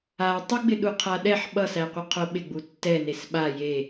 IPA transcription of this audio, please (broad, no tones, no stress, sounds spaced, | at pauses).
a tˤ i ɡ͡b ɪ ɗ u qʰ a ɗ ɛ ħ ɓ ʌ s æ qʷ ɪ qʰ o ɓ ɪ ɡ͡b u tː ɛ n e s ɓ a j e